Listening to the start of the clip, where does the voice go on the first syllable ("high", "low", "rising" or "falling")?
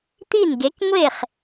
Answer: falling